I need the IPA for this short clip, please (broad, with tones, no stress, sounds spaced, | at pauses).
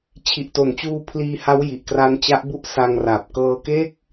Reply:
t͡ɕʰ i˨˩ ʔ t o˨˩ n t͡ɕ uː˧ pʰ l iː˧ h a˦˥ w j i˨˩ ʔ k r a˧ n t͡ɕ a˦˥ ʔ b u˦˥ ʔ s a˧ ŋ r a˨˩ p̚ k ɤː˧ k e˥˩ k̚